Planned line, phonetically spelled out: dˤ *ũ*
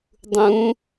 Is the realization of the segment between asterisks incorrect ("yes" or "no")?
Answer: no